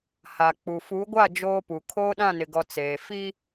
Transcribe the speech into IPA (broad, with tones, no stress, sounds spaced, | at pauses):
h a˨ k͡p u˨ f u˨˦ ɡʷ a˦˨ d͡ʒ oː˦ p u˨ kʰ oː˦ ɗ ã˦˨ n ɪ˨ ɡ ɔ˨ t͡s eː˨ f i˦